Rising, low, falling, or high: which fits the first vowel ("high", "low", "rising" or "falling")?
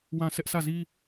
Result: falling